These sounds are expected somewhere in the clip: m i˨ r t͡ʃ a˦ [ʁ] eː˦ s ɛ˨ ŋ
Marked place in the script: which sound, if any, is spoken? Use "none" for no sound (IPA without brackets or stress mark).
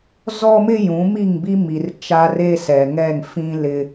r